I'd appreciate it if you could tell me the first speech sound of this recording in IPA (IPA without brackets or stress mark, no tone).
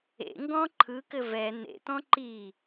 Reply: ḛ